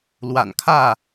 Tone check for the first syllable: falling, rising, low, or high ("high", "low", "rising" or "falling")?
low